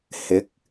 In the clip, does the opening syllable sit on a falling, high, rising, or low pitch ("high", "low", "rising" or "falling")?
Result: rising